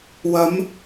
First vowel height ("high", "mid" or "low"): low